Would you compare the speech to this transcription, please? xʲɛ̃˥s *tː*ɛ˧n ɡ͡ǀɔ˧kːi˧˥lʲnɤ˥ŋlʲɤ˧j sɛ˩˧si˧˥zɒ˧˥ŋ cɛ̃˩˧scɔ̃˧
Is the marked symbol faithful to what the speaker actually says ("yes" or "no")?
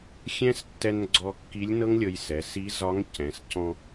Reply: yes